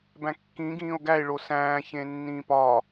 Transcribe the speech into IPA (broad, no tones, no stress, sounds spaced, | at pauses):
b æ̃ kː ĩ ɡ ĩː o̯ ɡ æ e̯ ɭ o s æ̃ː ç ẽ nː ĩː p ɒ